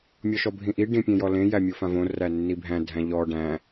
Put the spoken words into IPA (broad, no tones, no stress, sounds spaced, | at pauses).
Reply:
mʲ ɔ ʃ ɔ bʱ ĩ ʔ i ɖ ĩ pʲ ẽ j ɔ l ẽ j æ mʲ o f ã v õ r æ nː i bʱ æ̃ dʱ æ̃ ʎ ɔ ɖ æ̃